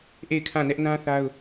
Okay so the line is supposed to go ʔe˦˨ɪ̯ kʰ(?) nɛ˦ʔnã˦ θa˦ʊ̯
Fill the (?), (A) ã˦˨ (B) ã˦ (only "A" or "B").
A